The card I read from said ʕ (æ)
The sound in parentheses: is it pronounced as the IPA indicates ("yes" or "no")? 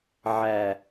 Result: yes